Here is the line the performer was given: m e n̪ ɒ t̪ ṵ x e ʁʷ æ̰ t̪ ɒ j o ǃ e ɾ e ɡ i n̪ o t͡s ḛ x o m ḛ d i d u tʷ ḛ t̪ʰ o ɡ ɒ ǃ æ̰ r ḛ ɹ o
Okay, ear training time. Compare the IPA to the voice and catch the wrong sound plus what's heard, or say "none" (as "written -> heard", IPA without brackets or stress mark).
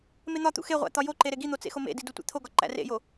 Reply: ɹ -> j